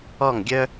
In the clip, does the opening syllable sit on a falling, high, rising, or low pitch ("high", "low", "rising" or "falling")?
falling